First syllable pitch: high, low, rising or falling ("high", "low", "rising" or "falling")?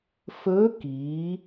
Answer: rising